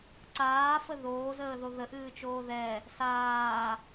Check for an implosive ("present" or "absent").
absent